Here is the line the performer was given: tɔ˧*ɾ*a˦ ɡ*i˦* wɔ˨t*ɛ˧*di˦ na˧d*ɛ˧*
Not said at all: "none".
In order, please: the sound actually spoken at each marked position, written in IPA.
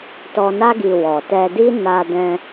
n, i˧, ɛ˧, ɛ̃˧

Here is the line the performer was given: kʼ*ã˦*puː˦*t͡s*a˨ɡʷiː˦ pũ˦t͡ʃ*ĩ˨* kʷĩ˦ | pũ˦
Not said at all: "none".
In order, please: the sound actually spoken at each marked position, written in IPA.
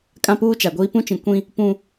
ã˦, t͡ʃ, ĩ˨

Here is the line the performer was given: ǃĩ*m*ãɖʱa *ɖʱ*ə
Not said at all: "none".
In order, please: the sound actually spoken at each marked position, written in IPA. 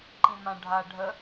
m, ɖʱ

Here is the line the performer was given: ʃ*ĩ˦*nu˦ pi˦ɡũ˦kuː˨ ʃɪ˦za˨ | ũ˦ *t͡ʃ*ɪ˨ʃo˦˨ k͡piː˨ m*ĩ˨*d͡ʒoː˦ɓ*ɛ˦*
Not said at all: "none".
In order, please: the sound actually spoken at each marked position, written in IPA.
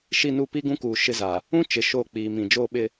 i˦, t͡ʃ, ĩ˨, ɪ˦

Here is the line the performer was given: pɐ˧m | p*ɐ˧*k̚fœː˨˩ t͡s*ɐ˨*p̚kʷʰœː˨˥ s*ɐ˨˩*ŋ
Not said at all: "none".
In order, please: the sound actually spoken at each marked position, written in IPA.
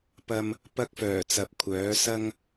ɐ˧, ɐ˨, ɐ˥

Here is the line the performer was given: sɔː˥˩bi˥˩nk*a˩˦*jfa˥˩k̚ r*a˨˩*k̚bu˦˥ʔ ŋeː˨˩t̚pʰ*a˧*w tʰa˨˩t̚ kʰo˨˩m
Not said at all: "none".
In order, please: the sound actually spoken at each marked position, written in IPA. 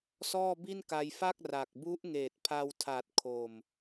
a˧, a˨˩, a˧

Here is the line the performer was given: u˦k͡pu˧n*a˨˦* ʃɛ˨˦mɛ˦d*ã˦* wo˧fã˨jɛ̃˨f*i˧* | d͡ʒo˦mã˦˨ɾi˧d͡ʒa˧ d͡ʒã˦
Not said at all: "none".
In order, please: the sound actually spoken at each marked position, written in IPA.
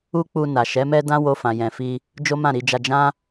a˨, ã˦, i˧

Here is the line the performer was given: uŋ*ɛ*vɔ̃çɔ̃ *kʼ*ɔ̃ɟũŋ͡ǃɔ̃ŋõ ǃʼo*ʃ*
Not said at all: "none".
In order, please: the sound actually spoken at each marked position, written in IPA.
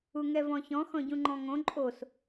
ɛ, x, s

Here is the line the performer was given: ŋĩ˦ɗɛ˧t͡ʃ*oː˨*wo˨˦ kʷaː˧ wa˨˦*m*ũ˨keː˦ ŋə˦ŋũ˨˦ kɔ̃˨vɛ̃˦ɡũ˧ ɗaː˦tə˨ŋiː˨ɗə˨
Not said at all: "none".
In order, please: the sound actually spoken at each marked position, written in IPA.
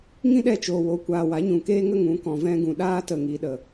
oː˨, ɲ

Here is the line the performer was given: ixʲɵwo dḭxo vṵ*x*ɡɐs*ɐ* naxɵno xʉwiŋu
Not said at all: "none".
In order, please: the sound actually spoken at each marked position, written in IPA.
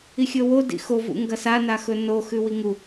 ŋ, a

